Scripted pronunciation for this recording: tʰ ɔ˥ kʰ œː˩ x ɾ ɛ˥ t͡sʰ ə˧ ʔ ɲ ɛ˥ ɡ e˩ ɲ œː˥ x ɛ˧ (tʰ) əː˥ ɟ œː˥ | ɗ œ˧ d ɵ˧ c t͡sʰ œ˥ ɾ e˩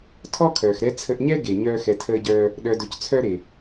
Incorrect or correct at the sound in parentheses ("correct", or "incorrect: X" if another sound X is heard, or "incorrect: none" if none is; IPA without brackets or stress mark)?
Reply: correct